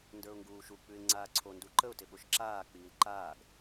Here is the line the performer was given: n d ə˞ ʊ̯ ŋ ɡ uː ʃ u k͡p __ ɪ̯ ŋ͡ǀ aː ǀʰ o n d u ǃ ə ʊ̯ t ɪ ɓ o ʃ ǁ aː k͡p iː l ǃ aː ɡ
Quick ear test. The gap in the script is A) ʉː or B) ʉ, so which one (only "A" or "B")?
B